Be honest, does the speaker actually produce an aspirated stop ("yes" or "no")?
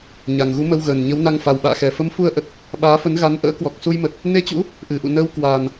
no